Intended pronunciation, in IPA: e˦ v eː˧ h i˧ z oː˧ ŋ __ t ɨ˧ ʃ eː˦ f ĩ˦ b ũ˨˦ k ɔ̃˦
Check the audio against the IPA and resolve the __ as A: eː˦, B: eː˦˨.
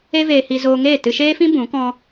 B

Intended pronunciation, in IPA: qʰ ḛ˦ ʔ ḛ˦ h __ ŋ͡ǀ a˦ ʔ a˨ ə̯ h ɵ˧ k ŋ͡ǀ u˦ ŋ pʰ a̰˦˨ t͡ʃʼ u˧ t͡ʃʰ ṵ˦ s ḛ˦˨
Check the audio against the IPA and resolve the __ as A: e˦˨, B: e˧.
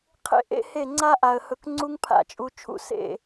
A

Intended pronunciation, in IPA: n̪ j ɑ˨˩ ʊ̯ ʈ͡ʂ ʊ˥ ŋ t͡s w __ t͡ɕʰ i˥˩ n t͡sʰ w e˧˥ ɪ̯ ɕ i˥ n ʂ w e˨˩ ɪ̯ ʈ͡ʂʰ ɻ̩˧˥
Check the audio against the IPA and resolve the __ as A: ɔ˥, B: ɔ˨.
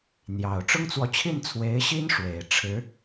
B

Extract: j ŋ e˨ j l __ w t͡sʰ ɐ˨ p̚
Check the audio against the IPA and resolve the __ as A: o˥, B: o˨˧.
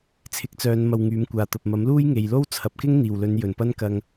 A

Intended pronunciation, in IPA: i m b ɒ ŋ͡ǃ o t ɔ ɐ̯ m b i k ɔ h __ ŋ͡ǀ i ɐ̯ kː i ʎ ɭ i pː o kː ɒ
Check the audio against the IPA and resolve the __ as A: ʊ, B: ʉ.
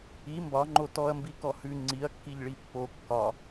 B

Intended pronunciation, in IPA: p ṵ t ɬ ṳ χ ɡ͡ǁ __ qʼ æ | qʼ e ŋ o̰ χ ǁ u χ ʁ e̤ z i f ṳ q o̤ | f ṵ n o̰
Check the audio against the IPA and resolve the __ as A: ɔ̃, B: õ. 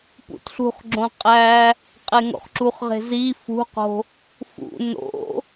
B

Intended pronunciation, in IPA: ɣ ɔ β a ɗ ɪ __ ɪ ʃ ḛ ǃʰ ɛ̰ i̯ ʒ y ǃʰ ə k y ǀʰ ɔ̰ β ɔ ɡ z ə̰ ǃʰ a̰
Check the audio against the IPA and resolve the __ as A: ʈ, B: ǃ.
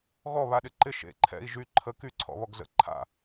B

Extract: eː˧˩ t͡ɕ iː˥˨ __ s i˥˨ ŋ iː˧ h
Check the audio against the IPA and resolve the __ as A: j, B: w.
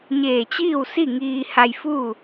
B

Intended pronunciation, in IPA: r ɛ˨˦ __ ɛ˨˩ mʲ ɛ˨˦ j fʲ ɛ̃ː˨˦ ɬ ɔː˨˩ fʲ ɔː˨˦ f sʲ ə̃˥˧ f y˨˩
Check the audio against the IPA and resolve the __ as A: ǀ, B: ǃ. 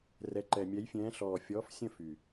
B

